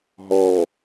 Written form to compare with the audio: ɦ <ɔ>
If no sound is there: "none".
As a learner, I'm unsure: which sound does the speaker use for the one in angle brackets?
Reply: ɔ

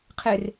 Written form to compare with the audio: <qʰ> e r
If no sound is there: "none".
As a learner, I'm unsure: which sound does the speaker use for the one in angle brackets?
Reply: qʰ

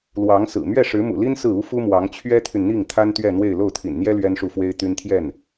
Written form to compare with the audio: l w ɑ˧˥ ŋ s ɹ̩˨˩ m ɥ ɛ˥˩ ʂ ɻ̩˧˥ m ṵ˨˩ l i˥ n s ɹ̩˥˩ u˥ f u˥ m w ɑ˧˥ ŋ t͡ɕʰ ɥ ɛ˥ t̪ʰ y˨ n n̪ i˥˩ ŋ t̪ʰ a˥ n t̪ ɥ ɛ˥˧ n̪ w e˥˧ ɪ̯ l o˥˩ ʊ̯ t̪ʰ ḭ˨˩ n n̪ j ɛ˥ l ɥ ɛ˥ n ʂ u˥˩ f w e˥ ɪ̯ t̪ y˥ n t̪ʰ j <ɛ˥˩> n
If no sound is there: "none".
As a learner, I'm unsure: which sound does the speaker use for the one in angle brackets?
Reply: ɛ˥˩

